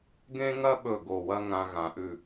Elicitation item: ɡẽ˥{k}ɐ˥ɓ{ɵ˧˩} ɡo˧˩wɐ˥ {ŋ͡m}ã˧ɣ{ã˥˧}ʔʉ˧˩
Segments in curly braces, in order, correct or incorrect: incorrect, correct, incorrect, incorrect

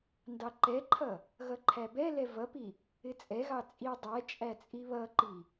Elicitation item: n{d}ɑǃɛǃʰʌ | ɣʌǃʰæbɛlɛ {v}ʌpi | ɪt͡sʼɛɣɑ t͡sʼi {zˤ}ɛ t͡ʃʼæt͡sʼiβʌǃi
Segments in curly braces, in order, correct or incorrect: correct, correct, incorrect

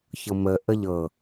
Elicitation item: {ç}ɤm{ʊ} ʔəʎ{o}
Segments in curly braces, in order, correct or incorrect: correct, incorrect, incorrect

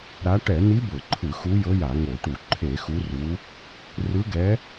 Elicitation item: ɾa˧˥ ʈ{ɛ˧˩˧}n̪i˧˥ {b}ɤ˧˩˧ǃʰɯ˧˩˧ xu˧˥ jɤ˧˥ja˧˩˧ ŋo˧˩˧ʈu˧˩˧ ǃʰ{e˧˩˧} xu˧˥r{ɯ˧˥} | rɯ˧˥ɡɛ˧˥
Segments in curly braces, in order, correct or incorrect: correct, correct, correct, incorrect

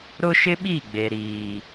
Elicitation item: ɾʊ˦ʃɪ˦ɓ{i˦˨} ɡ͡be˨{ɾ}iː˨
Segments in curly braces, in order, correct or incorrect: correct, correct

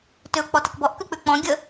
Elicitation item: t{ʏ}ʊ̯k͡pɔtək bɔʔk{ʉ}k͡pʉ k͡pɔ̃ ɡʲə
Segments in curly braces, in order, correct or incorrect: correct, correct

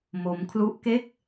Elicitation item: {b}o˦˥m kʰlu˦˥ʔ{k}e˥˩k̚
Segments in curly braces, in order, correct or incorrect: incorrect, correct

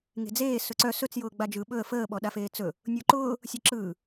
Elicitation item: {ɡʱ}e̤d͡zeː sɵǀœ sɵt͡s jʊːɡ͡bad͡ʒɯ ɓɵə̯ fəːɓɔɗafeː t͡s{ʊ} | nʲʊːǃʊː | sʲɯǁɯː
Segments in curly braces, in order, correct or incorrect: incorrect, incorrect

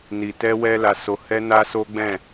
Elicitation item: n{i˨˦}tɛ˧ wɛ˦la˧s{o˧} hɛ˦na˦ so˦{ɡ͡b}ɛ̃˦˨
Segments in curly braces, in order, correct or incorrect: incorrect, correct, correct

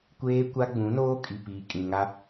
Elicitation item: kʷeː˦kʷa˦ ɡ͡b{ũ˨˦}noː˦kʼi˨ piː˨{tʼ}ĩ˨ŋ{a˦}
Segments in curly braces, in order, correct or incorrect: correct, incorrect, correct

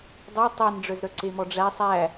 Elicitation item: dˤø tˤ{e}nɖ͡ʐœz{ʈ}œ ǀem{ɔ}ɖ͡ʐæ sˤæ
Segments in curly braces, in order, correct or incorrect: correct, incorrect, correct

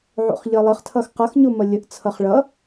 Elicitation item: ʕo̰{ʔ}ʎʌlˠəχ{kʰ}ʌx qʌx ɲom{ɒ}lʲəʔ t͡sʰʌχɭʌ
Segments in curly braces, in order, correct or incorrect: incorrect, incorrect, incorrect

